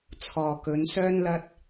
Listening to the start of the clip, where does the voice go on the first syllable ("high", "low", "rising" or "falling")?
low